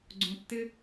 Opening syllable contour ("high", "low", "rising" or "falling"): high